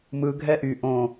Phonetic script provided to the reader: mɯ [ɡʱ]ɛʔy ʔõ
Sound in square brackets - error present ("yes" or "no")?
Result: no